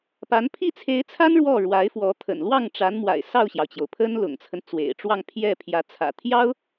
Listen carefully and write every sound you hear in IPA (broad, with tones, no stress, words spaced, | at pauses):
pa˧˥n pʰi˥˩t͡sʰe˧˥ɪ̯t͡sʰa˥n ɻwɔ˥˩ɻwa˧˥ɪ̯fwɔ˧˥ t̪ʰə̰˨˩n lwɑ˥˩ŋʈ͡ʂa˧˥nmwa̰˨˩ɪ̯ sɑ˥˩ʊ̯ɕjɑ˩ʊ̯t͡ɕjo˩ʊ̯pʰə˥n lʊ̰˨˩ŋt͡sʰə˦nt͡swḛ˨˩ɪ̯ʈ͡ʂwɑ˥˧ŋ pʰjɛ˥˩pʰjä˧˥ t͡sʰä̰˨˩t̪ʰjɑ˥ʊ̯